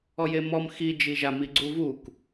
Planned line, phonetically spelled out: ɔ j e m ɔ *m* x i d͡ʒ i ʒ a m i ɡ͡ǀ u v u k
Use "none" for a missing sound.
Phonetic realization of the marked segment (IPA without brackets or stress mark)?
m